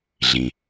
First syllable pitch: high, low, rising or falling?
low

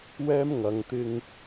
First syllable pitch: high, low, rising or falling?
high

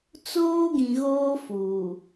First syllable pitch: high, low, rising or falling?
high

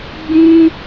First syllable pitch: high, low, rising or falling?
high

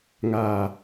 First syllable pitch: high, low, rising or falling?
low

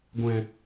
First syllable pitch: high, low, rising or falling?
low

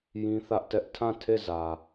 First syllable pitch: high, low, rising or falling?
high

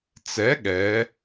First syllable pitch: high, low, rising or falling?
rising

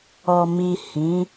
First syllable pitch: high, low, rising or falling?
low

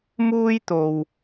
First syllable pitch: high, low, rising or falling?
high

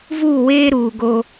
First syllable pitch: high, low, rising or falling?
falling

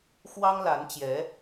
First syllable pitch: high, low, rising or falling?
high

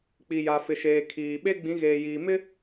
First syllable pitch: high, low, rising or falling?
low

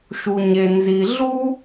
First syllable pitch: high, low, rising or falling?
low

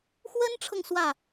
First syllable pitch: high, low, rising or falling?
high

